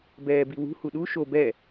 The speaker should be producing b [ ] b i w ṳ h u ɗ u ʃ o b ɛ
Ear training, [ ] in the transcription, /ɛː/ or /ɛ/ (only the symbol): ɛː